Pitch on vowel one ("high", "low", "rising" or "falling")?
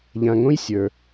low